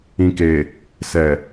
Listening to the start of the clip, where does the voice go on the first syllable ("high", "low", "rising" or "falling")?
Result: low